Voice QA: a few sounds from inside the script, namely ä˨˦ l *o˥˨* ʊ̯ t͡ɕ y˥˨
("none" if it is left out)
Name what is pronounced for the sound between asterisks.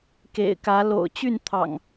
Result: o̰˨˩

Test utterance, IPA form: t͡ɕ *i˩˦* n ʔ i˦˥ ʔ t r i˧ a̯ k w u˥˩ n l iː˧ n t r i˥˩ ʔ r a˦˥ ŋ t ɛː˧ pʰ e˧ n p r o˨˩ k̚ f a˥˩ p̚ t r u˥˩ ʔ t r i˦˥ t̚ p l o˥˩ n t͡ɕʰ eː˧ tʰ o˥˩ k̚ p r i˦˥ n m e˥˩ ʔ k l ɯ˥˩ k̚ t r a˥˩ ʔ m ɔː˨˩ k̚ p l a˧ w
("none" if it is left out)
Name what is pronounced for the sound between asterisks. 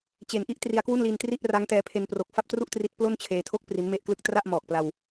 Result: e˩˦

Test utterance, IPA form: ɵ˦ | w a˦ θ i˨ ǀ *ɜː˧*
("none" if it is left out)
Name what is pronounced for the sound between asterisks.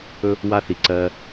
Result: ɜː˧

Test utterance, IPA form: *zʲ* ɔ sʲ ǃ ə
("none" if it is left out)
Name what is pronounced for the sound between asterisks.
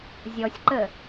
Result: zʲ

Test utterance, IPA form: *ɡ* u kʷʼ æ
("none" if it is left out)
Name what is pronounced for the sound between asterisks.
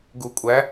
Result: ɡ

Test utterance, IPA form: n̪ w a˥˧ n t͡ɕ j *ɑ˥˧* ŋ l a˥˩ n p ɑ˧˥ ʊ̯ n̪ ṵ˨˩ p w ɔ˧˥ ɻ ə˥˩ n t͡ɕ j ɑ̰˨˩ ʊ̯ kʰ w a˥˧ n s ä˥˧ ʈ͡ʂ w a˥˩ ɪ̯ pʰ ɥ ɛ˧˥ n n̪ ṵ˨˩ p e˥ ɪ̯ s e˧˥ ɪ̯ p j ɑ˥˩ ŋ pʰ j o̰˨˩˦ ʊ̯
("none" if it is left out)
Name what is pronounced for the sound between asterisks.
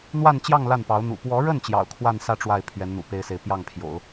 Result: ɑ˥˧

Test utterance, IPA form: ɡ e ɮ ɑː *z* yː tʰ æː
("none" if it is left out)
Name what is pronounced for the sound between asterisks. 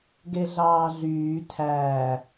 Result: ɮ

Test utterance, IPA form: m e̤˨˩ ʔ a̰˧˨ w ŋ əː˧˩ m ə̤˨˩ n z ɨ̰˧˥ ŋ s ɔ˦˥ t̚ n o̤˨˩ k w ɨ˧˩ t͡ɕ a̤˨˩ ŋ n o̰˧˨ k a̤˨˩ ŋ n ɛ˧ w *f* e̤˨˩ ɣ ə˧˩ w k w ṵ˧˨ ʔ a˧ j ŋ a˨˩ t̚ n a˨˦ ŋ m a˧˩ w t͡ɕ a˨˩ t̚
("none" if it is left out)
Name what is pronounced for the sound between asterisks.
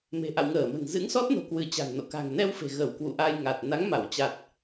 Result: f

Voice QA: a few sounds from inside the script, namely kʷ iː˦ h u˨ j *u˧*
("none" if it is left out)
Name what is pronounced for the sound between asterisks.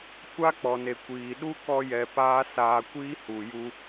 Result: u˧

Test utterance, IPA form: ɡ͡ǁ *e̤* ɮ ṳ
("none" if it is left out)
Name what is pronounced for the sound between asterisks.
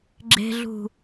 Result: e̤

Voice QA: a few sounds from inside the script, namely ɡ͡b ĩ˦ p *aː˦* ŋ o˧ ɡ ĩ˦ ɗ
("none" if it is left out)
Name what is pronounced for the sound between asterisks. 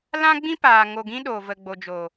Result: aː˨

